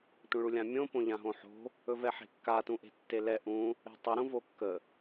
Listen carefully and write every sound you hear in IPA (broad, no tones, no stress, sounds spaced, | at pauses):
tʷ ə̃ ɭ u lʲ ã mʲ õ p õ ʎ ã ɦ õ ħ o̤ | ɵ v ɛ ħ e̤ kː a t ũ ʔ e̤ tː e l ɛ ʔ ũ | e̤ tˤ u ɾ ũ v o kː ə